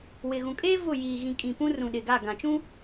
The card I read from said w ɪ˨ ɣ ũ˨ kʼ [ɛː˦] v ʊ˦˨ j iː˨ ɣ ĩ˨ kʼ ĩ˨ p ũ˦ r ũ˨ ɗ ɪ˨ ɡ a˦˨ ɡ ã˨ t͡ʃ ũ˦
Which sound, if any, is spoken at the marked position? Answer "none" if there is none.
eː˦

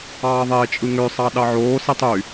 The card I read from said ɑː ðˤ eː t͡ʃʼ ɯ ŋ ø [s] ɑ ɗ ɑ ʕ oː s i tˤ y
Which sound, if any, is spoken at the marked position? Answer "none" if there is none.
sˤ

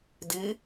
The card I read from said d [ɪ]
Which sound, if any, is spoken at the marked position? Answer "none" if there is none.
i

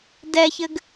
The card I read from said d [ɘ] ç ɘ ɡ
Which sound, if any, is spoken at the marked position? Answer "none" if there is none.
ɛ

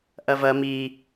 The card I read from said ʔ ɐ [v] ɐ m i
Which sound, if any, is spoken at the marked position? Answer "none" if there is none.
v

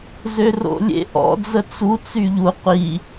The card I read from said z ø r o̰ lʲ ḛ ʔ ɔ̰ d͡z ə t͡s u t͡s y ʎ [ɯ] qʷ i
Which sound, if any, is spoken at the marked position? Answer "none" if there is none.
u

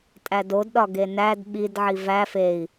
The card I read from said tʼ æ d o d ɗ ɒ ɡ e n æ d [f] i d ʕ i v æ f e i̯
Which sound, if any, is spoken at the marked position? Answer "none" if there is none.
ɓ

